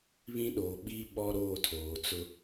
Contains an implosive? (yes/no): yes